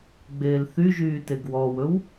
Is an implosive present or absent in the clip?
absent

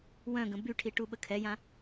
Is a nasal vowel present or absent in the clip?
present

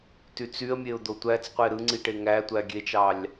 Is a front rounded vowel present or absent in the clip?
present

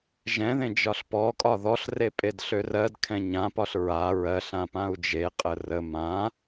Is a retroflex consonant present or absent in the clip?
absent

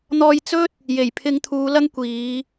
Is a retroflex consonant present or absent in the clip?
absent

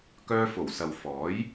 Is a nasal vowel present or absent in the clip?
absent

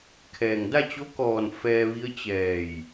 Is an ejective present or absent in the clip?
absent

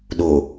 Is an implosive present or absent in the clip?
present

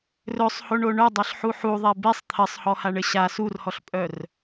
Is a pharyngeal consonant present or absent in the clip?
present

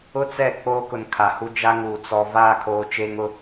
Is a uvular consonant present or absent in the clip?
absent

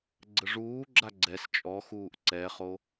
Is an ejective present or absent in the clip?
present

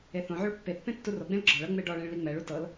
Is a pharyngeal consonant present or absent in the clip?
present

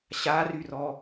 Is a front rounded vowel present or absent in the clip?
present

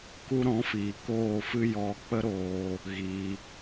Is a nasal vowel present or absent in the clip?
present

